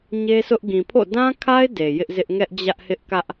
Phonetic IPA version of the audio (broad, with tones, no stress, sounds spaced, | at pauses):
ɲ e˦ s ʊ˦ ʔ ɡ ĩ˨ pʰ o̰˦˨ d ã˦ kʰ a˦ ɪ̯ d e˨ j ɪ˦ ʔ z ɪ˦ ʔ ŋ ɛ˦ ʔ d͡ʑ ä˦ ʔ h ɪ˦ ʔ k ä˦ ʔ